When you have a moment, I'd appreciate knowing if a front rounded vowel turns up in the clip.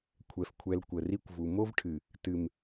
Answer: no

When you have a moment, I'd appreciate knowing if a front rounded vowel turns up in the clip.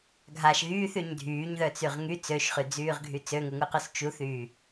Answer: yes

